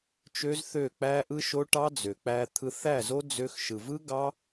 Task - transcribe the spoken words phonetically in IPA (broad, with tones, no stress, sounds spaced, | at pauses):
t͡ʃ ø˦ z θ ø˦˨ k͡p æ˦ ʔ ɯ˦ ʃ o˦ ʈ ɑ˦ d͡z ø˨ k͡p æ˧ t̪ʰ ɯ˧ θ æ˦˨ z o˦ d͡z ø˦ x ʃ ɯ˨ v ɯ˦ ɡ ɑ˦